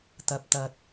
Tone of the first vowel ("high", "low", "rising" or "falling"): low